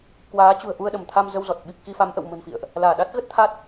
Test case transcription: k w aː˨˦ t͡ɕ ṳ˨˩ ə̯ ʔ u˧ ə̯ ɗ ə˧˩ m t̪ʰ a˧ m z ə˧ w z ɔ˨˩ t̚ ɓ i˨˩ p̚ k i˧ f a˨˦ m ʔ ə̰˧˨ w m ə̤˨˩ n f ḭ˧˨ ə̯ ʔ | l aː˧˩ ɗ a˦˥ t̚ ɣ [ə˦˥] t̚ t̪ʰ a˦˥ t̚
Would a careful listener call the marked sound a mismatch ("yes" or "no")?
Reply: no